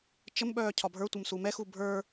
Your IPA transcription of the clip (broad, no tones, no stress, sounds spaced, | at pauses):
t͡ʃ ə m ɓ œː cʰ ɒ bʱ ə˞ tʷ ə m s u m ɛ x u bʱ ə˞